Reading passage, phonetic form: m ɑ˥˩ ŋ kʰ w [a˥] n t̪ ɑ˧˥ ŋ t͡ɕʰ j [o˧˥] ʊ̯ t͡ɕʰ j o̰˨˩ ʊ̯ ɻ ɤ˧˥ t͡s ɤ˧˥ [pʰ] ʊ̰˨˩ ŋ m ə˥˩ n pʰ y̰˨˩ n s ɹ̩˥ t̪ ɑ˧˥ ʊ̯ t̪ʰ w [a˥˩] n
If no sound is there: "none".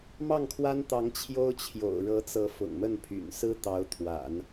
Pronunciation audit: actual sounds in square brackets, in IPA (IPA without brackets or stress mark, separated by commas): a˥, o˥, f, a̰˨˩˦